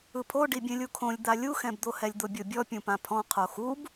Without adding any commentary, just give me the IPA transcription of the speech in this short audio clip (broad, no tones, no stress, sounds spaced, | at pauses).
ɯ pʰ o ɖ i bʲ ɛ̃ lʲ u kʰ õ lʲ d̪ a lʲ u x ɛ̃ b d̪ o h ɛ lʲ d̪ o bʲ o bʲ ɔ pʲ ũ p ã pʰ ɔ̃ qʰ o x u b